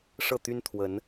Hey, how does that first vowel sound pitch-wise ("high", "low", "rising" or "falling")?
falling